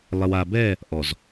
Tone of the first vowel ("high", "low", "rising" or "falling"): low